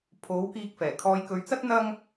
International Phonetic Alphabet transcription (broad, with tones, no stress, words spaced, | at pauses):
pʰo˨˥wkiː˧k̚fɛː˨˩ kʰɔː˧jkɵ˧ɥt͡sɐ˥t̚ n̪ɐ˥ŋ